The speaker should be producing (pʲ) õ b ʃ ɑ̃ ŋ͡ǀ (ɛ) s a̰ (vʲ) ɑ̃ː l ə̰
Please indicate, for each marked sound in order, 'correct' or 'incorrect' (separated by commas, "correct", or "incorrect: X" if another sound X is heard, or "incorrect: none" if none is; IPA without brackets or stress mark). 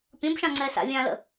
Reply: correct, incorrect: ɛː, correct